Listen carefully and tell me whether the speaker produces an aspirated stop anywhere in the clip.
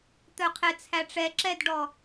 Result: yes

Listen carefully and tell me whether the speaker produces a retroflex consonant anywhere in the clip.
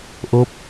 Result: no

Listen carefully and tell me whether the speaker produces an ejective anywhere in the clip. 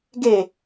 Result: no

